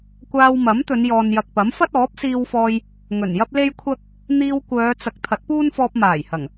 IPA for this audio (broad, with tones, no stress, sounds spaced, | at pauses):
kʷ aː˧ w m ɐ˨˥ m t̪ ɵ˨˧ n j ɔː˨ n j ɐ˨ k̚ p ɐ˨˥ m f ɐ˥ t̚ ɔː˨˥ p̚ s iː˧ w f ɔː˧ j | ŋ ɵ˨˩ n j ɐ˥ p̚ l e˥ j kʷʰ ɐ˥ k̚ | n̪ iː˧ w kʷ œː˨˧ t͡s ɐ˨˥ k̚ t̪ʰ ɐ˨˥ t̚ p uː˥ n f ɔː˧ p̚ m aː˨˩ j h ɐ˨˩ ŋ